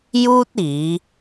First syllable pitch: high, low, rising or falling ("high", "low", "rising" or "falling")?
high